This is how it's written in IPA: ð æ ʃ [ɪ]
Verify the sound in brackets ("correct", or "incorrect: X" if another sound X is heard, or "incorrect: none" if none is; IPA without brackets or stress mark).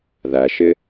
correct